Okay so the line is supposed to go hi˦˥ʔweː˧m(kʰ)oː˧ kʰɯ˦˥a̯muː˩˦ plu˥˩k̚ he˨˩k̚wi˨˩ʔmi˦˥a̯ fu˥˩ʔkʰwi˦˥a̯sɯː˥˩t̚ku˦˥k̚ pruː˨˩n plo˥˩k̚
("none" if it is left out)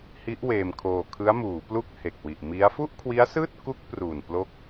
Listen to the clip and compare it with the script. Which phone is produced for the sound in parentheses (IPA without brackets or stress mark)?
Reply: kʰ